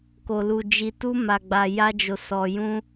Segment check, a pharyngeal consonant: absent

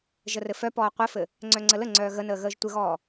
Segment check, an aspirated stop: absent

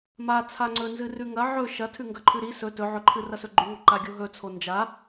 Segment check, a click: present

